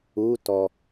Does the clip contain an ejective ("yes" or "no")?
no